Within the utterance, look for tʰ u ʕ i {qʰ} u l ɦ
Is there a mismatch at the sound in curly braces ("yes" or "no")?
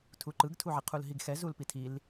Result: no